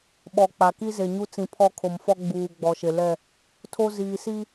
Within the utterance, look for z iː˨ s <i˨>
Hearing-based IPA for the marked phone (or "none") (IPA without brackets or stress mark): i˦